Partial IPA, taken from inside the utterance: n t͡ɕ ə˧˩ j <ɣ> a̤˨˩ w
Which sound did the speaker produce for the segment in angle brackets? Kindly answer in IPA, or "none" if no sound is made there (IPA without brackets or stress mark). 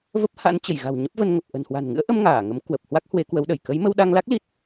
ɣ